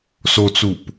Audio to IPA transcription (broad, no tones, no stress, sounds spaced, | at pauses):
s o t͡s u p